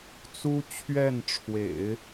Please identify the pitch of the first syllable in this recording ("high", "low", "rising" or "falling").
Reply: high